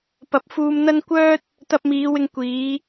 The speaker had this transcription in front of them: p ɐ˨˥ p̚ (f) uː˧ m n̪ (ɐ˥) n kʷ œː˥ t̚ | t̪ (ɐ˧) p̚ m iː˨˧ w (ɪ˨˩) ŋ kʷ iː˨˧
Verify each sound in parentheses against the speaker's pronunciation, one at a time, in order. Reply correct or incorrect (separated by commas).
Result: correct, correct, correct, incorrect